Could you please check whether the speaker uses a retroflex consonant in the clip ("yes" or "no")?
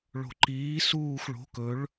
yes